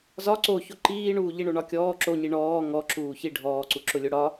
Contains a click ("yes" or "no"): yes